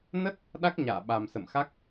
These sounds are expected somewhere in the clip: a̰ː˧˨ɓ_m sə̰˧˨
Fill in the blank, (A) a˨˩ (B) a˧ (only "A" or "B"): A